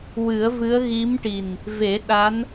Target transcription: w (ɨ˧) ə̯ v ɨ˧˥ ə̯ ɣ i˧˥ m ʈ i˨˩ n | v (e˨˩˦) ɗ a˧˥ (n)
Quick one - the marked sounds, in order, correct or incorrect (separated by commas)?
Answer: incorrect, correct, correct